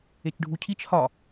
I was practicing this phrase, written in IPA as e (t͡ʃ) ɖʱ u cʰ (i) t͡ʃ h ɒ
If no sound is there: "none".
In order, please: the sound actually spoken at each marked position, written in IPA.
t͡ʃ, i

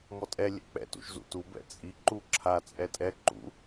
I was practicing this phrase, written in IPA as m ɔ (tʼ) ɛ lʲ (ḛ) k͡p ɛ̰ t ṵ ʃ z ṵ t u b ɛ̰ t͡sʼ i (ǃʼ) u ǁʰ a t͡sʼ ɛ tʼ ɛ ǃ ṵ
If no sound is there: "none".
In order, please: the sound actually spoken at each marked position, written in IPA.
tʼ, ɛ̰, ǃ

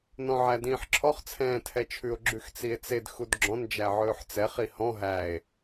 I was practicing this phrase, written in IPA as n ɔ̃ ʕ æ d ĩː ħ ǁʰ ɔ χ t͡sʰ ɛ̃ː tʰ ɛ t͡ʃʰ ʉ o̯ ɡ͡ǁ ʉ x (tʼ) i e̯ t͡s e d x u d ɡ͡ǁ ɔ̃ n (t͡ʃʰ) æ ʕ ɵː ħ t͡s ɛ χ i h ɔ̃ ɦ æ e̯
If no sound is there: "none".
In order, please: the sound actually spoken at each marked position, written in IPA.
t͡s, d͡ʒ

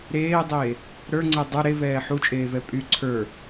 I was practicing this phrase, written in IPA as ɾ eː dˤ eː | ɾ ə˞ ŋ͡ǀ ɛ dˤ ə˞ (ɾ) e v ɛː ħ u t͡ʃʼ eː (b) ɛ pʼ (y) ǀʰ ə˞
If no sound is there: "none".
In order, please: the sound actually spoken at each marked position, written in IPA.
ɾ, v, y

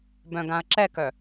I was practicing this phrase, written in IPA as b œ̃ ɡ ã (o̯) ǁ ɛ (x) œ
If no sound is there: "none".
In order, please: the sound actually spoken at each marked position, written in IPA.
ɐ̯, k

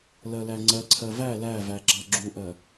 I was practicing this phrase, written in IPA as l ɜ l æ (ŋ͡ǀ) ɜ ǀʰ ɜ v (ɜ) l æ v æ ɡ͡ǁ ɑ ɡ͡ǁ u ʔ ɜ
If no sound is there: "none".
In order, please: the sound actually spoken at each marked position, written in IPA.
ŋ͡ǀ, æ

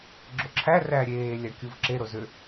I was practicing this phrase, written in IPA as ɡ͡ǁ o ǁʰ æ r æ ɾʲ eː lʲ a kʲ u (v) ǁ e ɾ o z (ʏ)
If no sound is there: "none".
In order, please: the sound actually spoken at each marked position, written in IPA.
v, ʏ

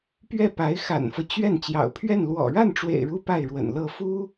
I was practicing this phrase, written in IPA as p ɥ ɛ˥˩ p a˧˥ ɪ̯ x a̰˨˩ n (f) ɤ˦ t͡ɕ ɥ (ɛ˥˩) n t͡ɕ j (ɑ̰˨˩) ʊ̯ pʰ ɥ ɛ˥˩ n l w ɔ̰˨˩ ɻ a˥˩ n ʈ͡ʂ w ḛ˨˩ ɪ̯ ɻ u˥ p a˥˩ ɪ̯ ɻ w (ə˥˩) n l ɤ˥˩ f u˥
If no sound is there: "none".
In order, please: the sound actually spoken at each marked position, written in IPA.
f, ɛ˥˩, ɑ̰˨˩, ə̰˨˩

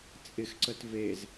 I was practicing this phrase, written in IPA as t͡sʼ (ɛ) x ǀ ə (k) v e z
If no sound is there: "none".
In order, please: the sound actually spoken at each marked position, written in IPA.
ɪ, t

